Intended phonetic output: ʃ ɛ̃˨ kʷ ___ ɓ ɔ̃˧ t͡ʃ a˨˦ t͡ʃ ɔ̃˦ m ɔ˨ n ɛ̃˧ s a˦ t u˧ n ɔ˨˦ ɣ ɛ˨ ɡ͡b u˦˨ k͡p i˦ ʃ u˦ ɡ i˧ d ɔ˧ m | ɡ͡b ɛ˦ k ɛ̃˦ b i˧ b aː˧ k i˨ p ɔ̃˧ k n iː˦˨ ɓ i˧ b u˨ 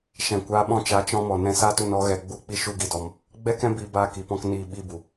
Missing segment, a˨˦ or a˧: a˨˦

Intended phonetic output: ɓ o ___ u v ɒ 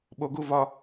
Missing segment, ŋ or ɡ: ɡ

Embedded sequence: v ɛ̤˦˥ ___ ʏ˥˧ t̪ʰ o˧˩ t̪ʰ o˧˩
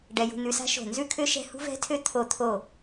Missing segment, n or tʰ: tʰ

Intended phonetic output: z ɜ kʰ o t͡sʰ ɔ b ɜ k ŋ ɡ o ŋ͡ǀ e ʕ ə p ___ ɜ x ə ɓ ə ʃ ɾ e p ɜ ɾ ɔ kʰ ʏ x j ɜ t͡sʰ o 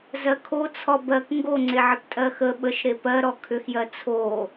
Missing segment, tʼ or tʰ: tʼ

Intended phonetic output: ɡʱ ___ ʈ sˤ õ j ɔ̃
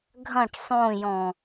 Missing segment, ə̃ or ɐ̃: ɐ̃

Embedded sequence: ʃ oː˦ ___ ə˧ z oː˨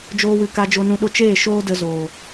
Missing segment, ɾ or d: d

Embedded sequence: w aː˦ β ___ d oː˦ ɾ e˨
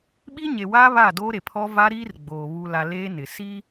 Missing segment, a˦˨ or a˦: a˦˨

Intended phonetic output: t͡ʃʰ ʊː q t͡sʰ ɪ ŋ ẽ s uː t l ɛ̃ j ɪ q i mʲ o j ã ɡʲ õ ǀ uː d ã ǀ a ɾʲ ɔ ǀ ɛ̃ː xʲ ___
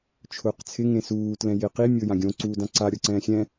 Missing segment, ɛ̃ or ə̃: ɛ̃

